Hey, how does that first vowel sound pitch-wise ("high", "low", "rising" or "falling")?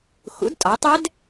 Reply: rising